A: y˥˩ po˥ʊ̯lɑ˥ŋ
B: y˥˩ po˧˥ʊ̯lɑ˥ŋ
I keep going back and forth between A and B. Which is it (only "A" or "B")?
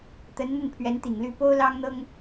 A